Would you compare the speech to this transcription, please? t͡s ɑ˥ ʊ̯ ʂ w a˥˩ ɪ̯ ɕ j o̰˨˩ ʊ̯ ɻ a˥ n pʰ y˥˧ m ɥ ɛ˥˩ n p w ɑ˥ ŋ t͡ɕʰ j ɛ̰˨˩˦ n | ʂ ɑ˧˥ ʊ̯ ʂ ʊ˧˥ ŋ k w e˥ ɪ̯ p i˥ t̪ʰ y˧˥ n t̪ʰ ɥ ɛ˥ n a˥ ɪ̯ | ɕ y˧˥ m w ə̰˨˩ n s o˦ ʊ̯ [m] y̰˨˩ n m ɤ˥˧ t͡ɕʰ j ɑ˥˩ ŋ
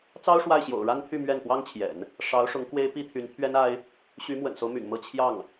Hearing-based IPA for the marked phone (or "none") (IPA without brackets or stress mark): m